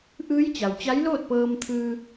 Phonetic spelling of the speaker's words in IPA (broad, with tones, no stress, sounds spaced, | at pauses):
ʔ ɯː˧˥ j t͡ɕ a˩ w t͡ɕ a˧˥ j l oː˥˨ t̚ p ɤː˧ m t̪ʰ ɯː˧